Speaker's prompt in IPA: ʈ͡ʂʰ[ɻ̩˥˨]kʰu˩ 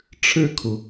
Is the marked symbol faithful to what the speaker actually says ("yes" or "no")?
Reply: yes